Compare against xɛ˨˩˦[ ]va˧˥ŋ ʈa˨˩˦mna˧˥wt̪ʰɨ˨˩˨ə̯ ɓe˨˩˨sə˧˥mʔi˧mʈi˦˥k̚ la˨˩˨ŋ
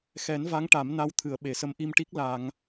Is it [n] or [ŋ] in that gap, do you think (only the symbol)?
n